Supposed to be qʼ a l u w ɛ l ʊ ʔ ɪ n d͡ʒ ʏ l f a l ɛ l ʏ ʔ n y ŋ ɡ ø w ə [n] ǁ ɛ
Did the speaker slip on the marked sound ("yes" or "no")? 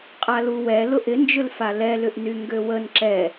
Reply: no